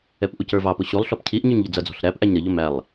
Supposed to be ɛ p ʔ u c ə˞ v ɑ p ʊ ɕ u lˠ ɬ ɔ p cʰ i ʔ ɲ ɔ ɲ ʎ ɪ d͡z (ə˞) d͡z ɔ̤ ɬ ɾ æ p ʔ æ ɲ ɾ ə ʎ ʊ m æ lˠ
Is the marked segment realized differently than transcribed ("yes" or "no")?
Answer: yes